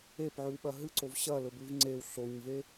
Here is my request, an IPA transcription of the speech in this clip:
e p ʕ ʉ w ɓ ɐ ɦ ɨ ǀ o v ɕ ɐ l ɵ b ʉ v ŋ͡ǀ e w ɬ o ɲ v e

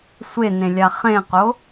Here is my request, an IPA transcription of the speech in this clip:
sʷ e n ẽ lʲ a χ ẽ q o

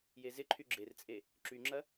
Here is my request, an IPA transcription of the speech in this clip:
j e z ɪ ǃʰ y ɡ͡ǁ e r t͡sʼ e | ǁ y ŋ͡ǁ ɐ

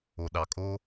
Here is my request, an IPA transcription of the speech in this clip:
o˨ ɗ ɑ˨ kʼ o˦

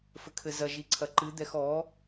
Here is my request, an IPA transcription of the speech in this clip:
f ɘ kʰ ɘ z ɐ ʒ i ǀʰ ɐ ǃ ɨ d̪ ɛ x ɔ

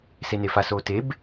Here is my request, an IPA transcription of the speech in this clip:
s e n e f a s oː t e b

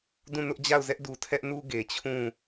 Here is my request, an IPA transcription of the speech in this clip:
d ũ˦˨ n ʊ˦ ʔ d͡ʑ a˦˨ ʊ̯ z ɛ˦ ʔ d u˨ tʰ ɛ˦ ʔ n u˦ ɡ e˨ t͡ɕʰ ũ˦˨

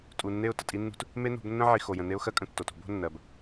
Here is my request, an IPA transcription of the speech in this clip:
tʼ u˨ nː e˦˨ ʊ̯ t ə˨ tʼ i˦ nː ṳ˦ t | m e˦ n o̤˨˦ b nː ə̃˦ ʕ i˨ x o˨ j ə̃˨ n e˦ ʊ̯ x ɜ˦ kʼ ə̃˦ tː o˨ t ṳ˨˦ b o̤˦ nː ɜ˨ b

